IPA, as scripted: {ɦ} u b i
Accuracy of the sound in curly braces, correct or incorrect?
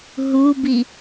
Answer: correct